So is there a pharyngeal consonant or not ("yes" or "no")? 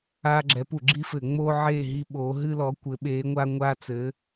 yes